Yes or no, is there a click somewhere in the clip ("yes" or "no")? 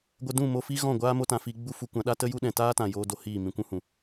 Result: no